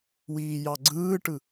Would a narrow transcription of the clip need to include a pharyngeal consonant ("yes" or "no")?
no